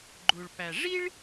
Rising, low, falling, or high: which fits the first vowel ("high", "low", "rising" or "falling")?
low